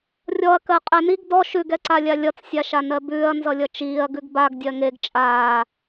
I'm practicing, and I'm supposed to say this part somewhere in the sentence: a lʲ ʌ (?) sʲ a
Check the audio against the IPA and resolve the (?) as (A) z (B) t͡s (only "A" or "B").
B